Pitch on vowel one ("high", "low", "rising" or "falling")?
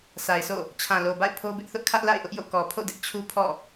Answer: low